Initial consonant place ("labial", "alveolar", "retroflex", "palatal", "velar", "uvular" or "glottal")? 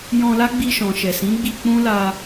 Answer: palatal